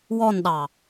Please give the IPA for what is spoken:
wɔnɗɑ

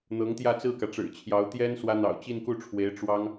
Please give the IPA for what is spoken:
n̪ɤ˧˥ŋt̪jä˥˧ t͡sɹ̩˥˩kä˩ʈ͡ʂɻ̩˨˩t͡ɕʰjɑ˧˥ʊ̯ t̪jɛ˥n swä˥ n̪ɑ̰˨˩ʊ̯ t͡ɕi˥˧nku˥˩ʈ͡ʂʰwe˧˥ɪ̯ ʈ͡ʂwɑ˥ŋ

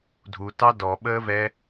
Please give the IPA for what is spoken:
dʱutɑ dɔɓəːvɛ

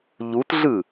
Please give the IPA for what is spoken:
ʎutɮɯ

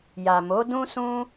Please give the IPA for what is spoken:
ja˨mo˨˦ dũ˦sũ˦

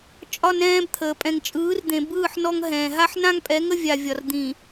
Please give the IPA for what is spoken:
t͡ʃʼɒ˦nɛ̃ː˦bt̪ʰəː˨ pʼɛ̃˨ŋt͡ʃʼɯː˨˦rd̪ẽ˨bɯː˦˨ħ nɔ˦ŋɦɛ̃ː˨ ɦa˦ħnã˦ŋpʼɛ˨˦ŋə˦ vʲa˨vʲɒ˨r d̪ĩ˨

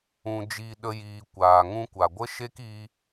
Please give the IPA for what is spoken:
ũ˨ d͡ʒiː˨ ɗə˧ jiː˨ kʷaː˨ ŋũ˧kʷa˨ɡʷə˦ ʃe˦ki˧

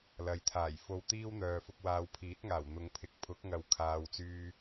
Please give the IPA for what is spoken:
lɐ˨jt̪ʰaː˨˩j fo˧wt̪iː˥wn̪œː˨ fʊ˧k̚waː˨˧wpʰiː˨˥t̚ŋaː˨˩w n̪ʊ˨˧ŋpʰɪ˨˥k̚pʰʊ˨˥k̚ ŋɐ˨wkʰaː˨wt͡syː˧

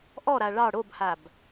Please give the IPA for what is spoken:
ʔɔɾa ɭɑ ɽobhab

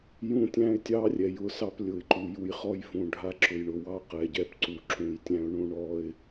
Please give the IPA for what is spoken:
jũ˦tʲæ̃˦ɪ̯tʲɑ˦rʲɛ˨j ʊ˦˨sɑ˦p lʲʊ˨ɪ̯ǃu˨ju˨j χɔ˦jfũ˨ ɖʱa˦ǁʊ˨jɳʊ˨ wɑ˦qɛ˨ɟɛ˦pǀu˨ ǁũ˨jtʲæ̃˦ʊ̯ ɳũ˦ɳɔ˦ɪ̯

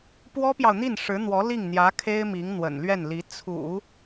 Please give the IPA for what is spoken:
pwɔ˥pjɑ˨ʊ̯n̪i˥˩nʂɻ̩˧˥ n̪wɔ˧˥li˥˩ŋn̪jä˧˥kʰe˥ɪ̯ mi˧˥ŋn̪wə̰˨˩nlɥɛ˥˩nli˧˥ t͡sʰṵ˨˩˦

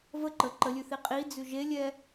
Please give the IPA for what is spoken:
və ǃə ǃəlʲʉθi qʼid͡zʉ ʒelʲɛ

